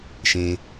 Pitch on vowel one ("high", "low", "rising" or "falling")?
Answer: high